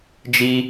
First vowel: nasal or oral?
oral